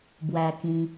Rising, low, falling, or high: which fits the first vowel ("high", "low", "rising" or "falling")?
low